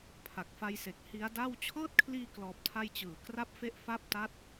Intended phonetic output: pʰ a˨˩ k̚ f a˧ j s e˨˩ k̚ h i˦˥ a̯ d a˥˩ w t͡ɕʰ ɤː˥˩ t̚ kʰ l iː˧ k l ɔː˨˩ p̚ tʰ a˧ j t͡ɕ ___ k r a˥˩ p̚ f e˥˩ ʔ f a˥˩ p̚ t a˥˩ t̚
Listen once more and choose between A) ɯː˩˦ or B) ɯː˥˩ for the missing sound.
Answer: A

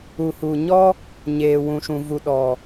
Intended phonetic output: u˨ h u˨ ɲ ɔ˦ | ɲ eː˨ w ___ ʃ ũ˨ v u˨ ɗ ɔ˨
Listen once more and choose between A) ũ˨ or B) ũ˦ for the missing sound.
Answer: A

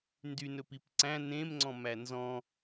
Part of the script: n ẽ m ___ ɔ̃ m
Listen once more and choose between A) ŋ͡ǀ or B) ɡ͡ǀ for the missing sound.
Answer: A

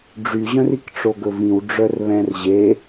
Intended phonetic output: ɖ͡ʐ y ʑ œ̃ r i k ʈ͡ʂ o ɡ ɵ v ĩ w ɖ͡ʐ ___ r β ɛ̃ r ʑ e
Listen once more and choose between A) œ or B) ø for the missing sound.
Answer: A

